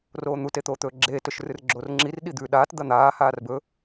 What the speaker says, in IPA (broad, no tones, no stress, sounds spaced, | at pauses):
r oː n̪ u t e t̪ oː t̪ ɵː ɡ͡ǁ eː t ɵ ʃ r ɨ r ɡ͡ǁ oː r ŋ͡ǁ i r ɗ i d̪ ʉ ɗ aː t d̪ ɐ n̪ aː h aː r b ɵ